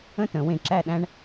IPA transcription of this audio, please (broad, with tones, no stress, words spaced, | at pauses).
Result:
ə̃˥˧tə̃˩˧ wẽ˧ǁæ˥˧ɗæ̃˥ɳ